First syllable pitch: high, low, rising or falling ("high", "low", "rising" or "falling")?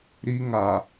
high